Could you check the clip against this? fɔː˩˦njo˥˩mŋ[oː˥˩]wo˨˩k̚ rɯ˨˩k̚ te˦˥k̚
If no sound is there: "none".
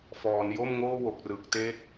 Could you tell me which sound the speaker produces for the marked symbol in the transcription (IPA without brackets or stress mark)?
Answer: oː˥˩